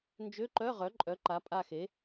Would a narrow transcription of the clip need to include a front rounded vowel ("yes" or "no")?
yes